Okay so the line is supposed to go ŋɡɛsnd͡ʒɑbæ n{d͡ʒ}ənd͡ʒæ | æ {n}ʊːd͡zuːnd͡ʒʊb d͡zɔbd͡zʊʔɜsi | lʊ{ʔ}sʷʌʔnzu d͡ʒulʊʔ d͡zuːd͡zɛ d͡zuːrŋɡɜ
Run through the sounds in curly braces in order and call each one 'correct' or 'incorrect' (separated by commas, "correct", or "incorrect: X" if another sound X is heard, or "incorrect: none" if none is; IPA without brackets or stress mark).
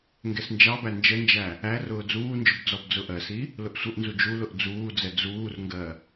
correct, incorrect: r, correct